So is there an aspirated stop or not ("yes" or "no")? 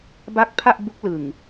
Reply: yes